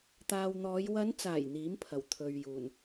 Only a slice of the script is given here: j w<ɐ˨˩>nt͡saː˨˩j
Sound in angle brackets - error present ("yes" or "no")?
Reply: yes